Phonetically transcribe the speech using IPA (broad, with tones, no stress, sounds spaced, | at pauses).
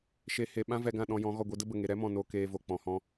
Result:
ʃ e˨ h e˨ ɓ ã˦ v ɛ˧ ɡ ã˦˨ ɗ ɔ̃˧ j ɔ̃˨˦ ɣ ɔ˨ ɡʷ e˧ d ə˦ b ə˨ ŋ e˨ ɾ ɛ˦ m ɔ̃˨ n o˧ k eː˧ v o˨ k͡p ɔ̃˨ h ɔ̃˧